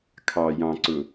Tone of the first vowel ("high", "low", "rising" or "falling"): low